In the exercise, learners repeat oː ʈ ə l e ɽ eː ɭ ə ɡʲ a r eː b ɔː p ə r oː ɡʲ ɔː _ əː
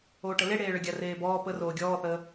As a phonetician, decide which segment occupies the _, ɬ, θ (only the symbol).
θ